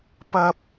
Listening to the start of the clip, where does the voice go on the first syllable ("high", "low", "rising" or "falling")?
high